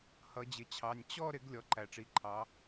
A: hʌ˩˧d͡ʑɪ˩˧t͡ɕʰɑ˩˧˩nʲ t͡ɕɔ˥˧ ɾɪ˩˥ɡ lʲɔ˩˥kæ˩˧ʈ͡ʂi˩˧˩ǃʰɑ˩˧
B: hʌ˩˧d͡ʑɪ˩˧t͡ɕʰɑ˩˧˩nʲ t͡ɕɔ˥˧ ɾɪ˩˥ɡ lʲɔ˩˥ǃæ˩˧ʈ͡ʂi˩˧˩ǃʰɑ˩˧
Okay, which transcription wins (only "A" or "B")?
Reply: B